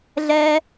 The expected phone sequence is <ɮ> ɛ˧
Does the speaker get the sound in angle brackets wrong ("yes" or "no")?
no